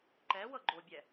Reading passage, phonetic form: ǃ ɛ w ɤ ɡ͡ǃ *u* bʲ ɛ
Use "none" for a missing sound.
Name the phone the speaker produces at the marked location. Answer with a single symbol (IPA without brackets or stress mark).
o